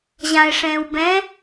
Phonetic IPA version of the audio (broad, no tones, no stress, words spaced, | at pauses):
ʑãe̯ ʂɛ̃ːwbɛ̃